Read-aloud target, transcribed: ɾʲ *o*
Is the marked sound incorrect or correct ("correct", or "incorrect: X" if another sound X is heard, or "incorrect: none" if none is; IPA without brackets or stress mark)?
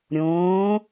incorrect: õ